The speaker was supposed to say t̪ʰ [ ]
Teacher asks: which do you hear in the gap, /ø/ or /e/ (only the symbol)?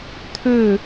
ø